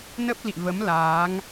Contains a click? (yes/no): no